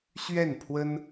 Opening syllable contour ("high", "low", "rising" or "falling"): falling